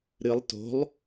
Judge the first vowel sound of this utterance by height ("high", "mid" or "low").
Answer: high